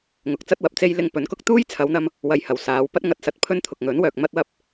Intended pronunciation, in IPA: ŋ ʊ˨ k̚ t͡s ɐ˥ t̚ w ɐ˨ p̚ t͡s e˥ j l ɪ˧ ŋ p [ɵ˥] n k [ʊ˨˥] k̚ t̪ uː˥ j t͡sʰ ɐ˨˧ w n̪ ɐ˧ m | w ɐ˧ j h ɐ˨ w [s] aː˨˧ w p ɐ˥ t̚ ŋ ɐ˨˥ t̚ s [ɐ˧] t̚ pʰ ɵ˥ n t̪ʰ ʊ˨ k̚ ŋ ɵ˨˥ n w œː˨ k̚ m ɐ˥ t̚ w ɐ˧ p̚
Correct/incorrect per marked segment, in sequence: incorrect, incorrect, correct, incorrect

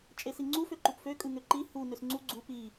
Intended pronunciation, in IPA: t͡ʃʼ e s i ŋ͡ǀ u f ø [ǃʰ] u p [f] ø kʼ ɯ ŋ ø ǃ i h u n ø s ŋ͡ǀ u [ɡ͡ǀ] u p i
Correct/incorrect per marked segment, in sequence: incorrect, correct, correct

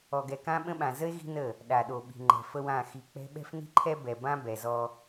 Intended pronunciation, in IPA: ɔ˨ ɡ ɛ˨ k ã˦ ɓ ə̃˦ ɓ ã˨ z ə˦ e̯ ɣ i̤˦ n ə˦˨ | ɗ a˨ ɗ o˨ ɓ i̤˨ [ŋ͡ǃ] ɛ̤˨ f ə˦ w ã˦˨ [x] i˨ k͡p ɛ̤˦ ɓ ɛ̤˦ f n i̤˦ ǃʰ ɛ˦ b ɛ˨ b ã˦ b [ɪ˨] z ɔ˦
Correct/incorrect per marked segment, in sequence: correct, correct, incorrect

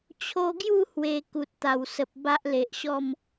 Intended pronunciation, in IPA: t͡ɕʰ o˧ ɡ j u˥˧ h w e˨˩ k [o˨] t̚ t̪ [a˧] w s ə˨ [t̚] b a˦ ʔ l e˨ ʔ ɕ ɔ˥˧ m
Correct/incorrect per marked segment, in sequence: incorrect, incorrect, incorrect

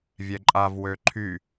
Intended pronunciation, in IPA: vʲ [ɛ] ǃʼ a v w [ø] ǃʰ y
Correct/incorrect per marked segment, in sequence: correct, correct

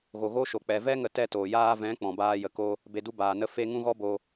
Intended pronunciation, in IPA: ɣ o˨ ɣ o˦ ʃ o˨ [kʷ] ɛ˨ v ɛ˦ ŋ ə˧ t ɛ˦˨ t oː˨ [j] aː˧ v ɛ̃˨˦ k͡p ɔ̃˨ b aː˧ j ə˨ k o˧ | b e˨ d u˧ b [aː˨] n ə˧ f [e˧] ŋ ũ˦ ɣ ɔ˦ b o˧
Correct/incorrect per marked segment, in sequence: incorrect, correct, correct, correct

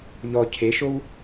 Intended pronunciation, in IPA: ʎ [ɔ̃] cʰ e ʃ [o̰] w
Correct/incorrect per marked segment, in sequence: incorrect, incorrect

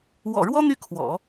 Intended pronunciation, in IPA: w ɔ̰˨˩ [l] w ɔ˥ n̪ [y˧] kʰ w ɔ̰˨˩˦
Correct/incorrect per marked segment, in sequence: incorrect, incorrect

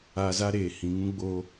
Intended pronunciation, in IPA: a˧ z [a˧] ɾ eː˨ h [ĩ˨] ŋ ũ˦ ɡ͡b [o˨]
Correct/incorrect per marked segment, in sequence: incorrect, correct, incorrect

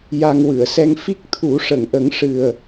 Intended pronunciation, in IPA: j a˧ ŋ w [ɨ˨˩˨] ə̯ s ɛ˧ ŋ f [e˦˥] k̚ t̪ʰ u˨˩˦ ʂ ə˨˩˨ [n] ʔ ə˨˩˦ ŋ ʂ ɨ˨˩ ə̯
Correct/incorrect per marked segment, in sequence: correct, incorrect, incorrect

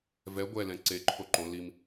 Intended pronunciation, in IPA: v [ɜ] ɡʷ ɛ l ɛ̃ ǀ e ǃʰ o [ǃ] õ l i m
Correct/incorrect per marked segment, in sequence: incorrect, correct

